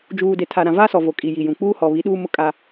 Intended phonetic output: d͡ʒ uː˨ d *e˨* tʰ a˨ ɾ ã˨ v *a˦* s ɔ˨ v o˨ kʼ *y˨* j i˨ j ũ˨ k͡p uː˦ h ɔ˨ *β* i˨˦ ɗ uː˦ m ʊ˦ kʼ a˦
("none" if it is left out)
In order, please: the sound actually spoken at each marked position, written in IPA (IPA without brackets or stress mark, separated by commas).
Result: e˨, a˦, i˨, β